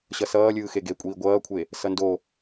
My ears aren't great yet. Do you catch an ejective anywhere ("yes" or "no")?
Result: yes